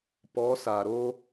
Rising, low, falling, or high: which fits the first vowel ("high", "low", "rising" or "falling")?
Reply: rising